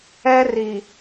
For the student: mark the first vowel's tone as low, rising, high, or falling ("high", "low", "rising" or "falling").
high